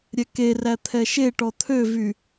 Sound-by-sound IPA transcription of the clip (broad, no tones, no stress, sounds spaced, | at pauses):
ɾʲ ɛ k e r æ t̪ʰ ɛ ʃ e ʈ ɔ t̪ʰ ø v y